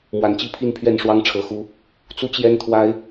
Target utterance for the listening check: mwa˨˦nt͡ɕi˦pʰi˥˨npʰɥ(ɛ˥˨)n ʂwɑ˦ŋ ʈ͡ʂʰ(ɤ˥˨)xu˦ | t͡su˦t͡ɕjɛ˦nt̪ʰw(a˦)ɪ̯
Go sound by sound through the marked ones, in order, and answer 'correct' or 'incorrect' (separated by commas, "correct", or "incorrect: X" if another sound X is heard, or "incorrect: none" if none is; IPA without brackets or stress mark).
correct, incorrect: ɤ˨˦, correct